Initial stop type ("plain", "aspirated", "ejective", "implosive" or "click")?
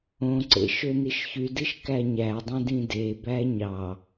click